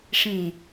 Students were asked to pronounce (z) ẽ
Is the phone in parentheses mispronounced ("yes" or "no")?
yes